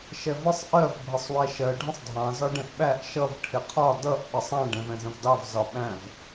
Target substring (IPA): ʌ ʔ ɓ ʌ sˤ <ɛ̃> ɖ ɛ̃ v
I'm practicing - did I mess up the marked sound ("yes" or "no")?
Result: yes